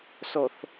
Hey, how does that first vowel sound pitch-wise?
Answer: low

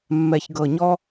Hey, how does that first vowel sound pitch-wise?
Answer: low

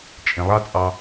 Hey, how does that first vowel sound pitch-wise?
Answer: low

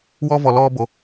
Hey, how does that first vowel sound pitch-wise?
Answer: high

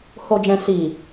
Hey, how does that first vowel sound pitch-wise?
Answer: low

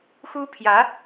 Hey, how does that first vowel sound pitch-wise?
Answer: high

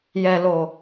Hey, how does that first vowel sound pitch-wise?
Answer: low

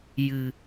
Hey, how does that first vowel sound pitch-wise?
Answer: low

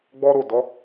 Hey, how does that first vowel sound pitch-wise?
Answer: high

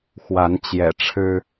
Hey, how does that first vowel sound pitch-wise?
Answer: rising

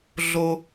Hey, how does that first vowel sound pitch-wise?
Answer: low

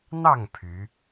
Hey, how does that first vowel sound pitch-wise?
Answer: falling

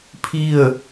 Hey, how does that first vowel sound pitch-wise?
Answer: falling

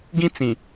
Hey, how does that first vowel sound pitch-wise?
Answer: high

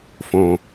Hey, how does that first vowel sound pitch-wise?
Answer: low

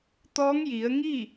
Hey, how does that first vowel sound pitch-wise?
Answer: rising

